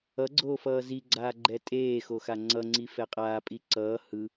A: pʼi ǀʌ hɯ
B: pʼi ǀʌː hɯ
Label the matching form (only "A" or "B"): B